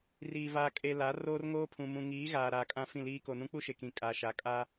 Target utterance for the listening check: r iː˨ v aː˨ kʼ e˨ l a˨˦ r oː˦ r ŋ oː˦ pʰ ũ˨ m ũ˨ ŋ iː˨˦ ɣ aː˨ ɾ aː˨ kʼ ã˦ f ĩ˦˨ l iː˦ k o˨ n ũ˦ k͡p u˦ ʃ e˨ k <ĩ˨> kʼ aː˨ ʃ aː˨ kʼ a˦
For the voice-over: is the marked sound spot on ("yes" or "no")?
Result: yes